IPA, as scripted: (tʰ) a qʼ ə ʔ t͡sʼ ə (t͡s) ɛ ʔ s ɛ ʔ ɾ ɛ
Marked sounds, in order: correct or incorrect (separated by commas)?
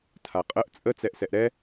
correct, correct